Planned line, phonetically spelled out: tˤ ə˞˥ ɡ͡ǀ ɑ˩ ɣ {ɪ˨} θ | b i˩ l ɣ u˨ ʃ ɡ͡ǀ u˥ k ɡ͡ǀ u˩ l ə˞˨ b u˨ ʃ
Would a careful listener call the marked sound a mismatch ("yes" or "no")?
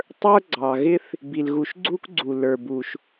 yes